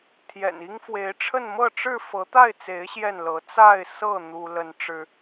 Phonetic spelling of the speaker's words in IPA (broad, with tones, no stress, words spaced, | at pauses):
t̪ʰjɛ̰˨˩ni˦ŋfwe˨˦ɪ̯ʈ͡ʂʰə˥˨n mɤ˥˨ʈ͡ʂɻ̩˥˨ fɤ˨˦t̪a˥˨ɪ̯t͡se˨˦ɪ̯ ɕjɛ˥˨nlɤ˨˦ t͡sa˥˨ɪ̯sɤ˥˨ n̪u˦ lə˦nʈ͡ʂɻ̩˦